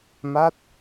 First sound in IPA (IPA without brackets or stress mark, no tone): m